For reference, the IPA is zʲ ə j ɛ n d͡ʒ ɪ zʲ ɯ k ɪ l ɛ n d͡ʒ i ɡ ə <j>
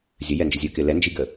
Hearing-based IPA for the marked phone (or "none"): none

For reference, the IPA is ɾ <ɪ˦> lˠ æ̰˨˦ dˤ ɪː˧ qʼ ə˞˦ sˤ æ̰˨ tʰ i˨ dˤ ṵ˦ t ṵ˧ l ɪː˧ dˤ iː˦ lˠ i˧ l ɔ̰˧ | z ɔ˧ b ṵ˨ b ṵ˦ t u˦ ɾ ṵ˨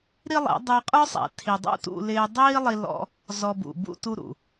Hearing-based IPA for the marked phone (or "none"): i˦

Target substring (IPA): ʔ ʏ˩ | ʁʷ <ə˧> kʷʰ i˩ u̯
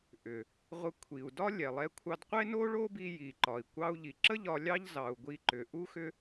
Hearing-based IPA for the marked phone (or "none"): ə˧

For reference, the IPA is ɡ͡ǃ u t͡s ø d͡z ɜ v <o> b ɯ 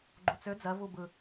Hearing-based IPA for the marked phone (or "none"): u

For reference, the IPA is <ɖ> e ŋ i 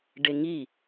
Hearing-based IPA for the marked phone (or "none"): ɖ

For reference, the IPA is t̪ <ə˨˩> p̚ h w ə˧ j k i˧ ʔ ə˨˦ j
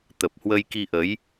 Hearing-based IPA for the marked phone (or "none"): ə˨˩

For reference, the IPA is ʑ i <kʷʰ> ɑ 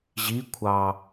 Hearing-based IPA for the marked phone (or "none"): kʷʰ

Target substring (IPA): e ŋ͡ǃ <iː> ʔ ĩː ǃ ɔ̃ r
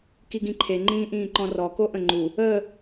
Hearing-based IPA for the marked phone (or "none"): ĩː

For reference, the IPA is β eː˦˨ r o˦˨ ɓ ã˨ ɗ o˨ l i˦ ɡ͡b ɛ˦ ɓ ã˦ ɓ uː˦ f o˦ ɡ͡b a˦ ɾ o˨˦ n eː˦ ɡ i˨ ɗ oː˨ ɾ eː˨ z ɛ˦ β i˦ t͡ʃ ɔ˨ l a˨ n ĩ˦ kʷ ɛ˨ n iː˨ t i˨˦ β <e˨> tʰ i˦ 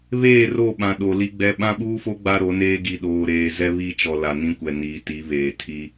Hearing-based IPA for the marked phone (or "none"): eː˨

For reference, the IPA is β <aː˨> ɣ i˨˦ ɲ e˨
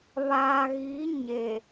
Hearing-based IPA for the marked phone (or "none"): aː˨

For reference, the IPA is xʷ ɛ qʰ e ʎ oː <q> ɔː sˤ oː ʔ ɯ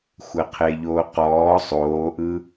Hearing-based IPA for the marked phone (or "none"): q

